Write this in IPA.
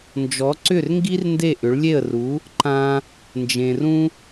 nd͡ʒɔ˩˥ǀʏ˥˩rŋɡi˥r nde˥˩ʔʏ˩˥ɭlʲe˥˩ə̯ ru˩˥ | ǃã˧ | nd͡ʒẽ˩rũ˧

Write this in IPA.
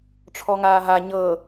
ʈ͡ʂʰɔŋaːɦa ɲɤ

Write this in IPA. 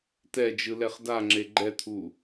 tɛd͡ʒɯlɛχ daŋ͡ǁe ɡ͡ǃɛt̪ʰu

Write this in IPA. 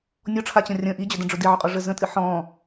nʲɔʈ͡ʂʰat͡ɕɐ̃ rʲə̃ ʔid͡ʑʏdə̃ɖ͡ʐʊ diʕʏqʼɔʐə zə̃tʼɨ ħɔ̃

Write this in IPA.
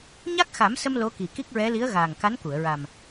ɲa˦˥k̚xa˨˩˦msə˧m lo˧˥ki˨˩ki˦˥k̚ɹɛ˧˥ li˧˥ə̯ɣaː˨˩ŋka˧˥nku˨˩˨ə̯ ɹa˨˩m

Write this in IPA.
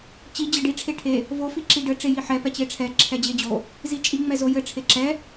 t͡ɕi d͡ʑɘɖi ʈ͡ʂʰeʈʰe | vo fiǁiɖɘ ʈ͡ʂejiħɛ pɛt͡ɕeʈ͡ʂʰɛ ǁʰɛd͡ʑed͡ʑo | zit͡ʃʼi ŋ͡mɛzojɘ ʈ͡ʂʰeǁɛ

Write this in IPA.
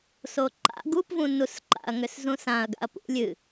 soǃa̰ ɡupvũnus ǃa̰ɐ̯ŋʏszũsãɐ̯ ɡa̰ɐ̯pṵlʲ ɨ

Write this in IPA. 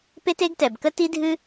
pe˥te˥ɡtɛ˩bkə˥ ti˥dʱɨ˥

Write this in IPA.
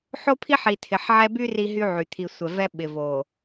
ħo˦pʰi˦ħi˨ tʰɪ˨ħ ʕɛ˦ by˦ ri˦ɦy˦ʕy˨ t̪ʰi˨ sʷɛ˨vɛ˦ ɓɪ˨vo˨

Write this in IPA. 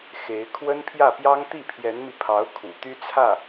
xe˧˥ɪ̯ kʰwə˥npʰjä˥˩pjɑ˥ŋ t̪i˥˩pʰjɛ˧˥nmi˧ pʰɑ˧˥ʊ̯ kʰṵ˨˩t̪y˥t͡sʰä˥˩

